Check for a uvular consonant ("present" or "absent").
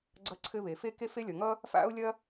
absent